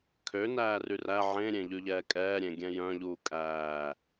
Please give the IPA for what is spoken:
kʰønæːry ræ ʕẽɾʲẽʎʉʎɛː kʼɛːɾʲẽɡʲɛ̃ jœ̃ʎuː kʼæː

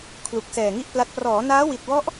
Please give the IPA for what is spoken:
kʰlu˨˩k̚sɛː˨˩ŋi˥˩ʔpla˦˥t̚ prɔː˩˦naː˦˥wi˨˩t̚wɔ˦˥ʔ

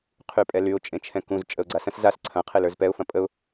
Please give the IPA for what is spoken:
qʰypʼɛlyʊ̯ t͡ʃʼẽt͡ʃʰɛ̃kũz t͡ʃʼəʊ̯ɡ͡ǀasɐ̃s zas ǀʰɐ̃ qʰelə˞zpɛʊ̯ fɐ̃pʼəʊ̯

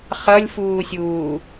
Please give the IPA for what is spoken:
χʌlʲfuːsʲuː

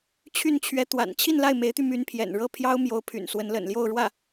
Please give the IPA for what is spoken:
t͡ɕʰy˥˩nt͡ɕʰɥɛ˧˥ t̪wa̰˨˩n t͡ɕʰi˥˧nla˥˩ɪ̯me˧˥ɪ̯t̪y˧ my˧˥npʰjɛ̰˨˩nɻɤ˥˩ pʰjɑ˥ʊ̯mjo˧˥ʊ̯pʰy̰˨˩n swə˧˥nlə̰˨˩nljo˥˧ʊ̯ɻwä˥˩

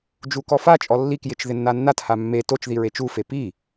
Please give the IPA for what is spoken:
d͡ʒukɔfat͡ʃʼɔ lːikjɪt͡ʃ ðɪnːanːatha mːe tot͡ʃði ɹet͡ʃufe pi

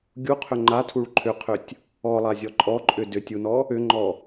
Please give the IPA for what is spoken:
ɡʲuqʰʏ ŋ͡ǃatʰuɭ ǃʰʏqʰʏtʲ | ɔlˠazʲɔ ǃʼɔǃʼʏ dʏtʲunɔ | ʏŋ͡ǃɔ

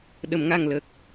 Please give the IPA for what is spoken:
ɗə˨˩˨mŋa˨˩ŋlə˨˩k̚

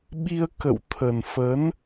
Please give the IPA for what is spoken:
ɓi˧ə̯kə̰˧˨w t̪ʰə˨˩nfə˨˦n

